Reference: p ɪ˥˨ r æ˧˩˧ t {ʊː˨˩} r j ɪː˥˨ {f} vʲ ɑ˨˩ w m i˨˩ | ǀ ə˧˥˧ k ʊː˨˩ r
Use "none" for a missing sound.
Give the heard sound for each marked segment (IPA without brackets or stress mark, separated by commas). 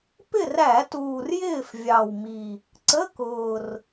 uː˨˩, f